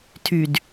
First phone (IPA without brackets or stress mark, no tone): tʰ